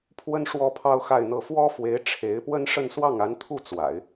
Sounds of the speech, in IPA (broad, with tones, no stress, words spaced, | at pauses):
pʰwə˥n ʂwɔ˥pʰɑ˥ʊ̯xa˥˧ɪ̯n̪ɤ˥˩ fwɔ˥fwe˧˥ɪ̯ ʈ͡ʂʰe˧˥ɪ̯pwə˥nʂə˥˧n swɑ˥˩ŋa˧˥nt̪ʰu˥˩ t͡swa̰˨˩˦ɪ̯